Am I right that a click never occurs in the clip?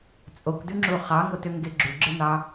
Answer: no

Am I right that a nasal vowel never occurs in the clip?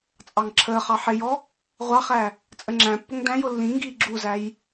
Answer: no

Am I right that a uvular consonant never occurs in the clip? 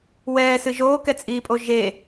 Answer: yes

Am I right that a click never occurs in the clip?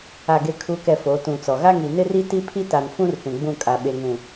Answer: yes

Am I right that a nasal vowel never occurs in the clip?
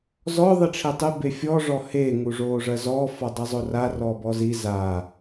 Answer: yes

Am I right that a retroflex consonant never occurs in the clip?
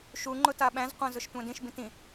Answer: yes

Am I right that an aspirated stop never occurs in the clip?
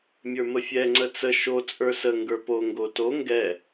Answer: yes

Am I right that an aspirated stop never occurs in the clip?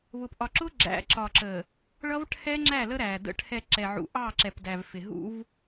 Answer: no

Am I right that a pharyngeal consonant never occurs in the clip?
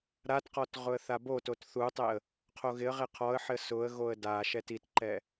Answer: no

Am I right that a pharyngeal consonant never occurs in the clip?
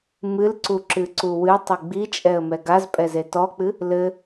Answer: yes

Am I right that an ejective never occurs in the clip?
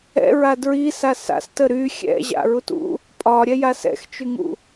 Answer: no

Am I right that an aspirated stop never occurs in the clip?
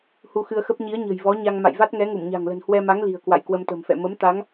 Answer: yes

